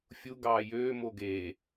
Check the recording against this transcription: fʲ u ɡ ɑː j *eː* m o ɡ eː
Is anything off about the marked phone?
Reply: yes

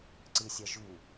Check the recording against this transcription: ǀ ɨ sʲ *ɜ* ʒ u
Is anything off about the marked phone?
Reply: no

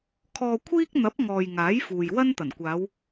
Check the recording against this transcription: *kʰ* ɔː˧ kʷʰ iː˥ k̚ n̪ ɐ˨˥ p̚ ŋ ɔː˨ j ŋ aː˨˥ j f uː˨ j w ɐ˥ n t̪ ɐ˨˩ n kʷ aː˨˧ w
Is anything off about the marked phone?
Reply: no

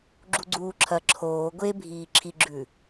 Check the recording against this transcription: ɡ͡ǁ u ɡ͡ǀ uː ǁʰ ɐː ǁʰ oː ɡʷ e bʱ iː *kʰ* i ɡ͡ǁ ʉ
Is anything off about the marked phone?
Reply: yes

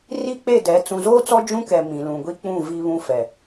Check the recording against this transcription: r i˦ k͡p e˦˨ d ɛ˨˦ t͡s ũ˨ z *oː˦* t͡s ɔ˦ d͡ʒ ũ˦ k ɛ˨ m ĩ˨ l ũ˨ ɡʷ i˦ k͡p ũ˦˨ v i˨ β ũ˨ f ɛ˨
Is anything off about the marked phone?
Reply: no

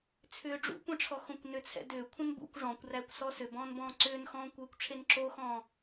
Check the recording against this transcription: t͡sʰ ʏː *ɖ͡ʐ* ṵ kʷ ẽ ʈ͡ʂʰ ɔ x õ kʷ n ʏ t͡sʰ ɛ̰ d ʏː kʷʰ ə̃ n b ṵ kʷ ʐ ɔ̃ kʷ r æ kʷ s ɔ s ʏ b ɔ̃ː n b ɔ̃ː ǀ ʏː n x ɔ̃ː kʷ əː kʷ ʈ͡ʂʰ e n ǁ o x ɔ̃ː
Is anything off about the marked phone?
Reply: no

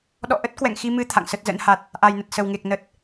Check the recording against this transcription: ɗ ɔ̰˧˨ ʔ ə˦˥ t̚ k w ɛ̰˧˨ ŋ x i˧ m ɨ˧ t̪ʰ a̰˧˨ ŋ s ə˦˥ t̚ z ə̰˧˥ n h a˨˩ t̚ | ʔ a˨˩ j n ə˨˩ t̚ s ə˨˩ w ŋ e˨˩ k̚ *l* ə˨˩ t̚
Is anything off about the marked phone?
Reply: yes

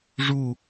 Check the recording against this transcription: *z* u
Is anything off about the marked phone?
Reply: yes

